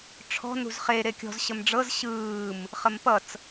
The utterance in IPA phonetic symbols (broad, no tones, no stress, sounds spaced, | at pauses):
ʈ͡ʂʰ ɔ̤ n ṳ z χ e ɾ e kʲ ɔ̤ z ɕ ə m ɖ͡ʐ ɤ z ɕ ɯː m | χ ə m p ʌ t͡s